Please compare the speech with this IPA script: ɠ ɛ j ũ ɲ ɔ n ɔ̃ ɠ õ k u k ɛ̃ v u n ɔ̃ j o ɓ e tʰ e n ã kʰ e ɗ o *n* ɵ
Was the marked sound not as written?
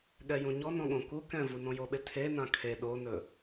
no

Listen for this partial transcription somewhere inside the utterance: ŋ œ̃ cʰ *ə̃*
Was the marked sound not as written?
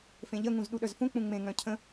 no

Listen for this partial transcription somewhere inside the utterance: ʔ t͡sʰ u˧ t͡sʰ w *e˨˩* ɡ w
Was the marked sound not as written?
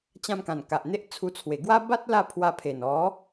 no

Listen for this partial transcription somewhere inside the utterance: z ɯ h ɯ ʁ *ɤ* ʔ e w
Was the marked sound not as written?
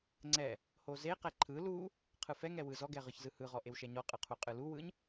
yes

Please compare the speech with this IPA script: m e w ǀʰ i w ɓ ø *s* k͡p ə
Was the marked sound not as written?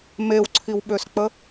no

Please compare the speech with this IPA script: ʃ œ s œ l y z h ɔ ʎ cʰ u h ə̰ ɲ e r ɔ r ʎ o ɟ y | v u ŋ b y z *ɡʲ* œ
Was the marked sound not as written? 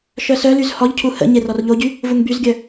no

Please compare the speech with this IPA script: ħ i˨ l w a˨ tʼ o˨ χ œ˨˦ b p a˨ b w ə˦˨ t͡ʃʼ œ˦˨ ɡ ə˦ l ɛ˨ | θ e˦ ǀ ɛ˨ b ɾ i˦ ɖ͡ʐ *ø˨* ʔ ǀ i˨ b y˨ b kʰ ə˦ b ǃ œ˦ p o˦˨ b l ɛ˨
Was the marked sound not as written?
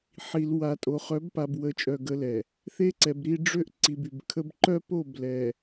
yes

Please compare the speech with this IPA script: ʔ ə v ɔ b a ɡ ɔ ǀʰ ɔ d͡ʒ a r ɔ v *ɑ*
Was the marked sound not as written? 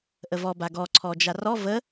yes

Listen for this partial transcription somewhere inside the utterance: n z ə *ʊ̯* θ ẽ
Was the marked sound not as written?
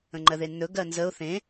no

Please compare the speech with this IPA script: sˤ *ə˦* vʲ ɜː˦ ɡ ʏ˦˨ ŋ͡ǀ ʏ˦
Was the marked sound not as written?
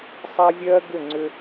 yes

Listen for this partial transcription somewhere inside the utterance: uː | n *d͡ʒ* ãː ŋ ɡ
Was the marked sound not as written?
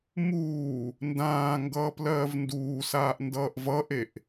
yes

